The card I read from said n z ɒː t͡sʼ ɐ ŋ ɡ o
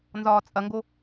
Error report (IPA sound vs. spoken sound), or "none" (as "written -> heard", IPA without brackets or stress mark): none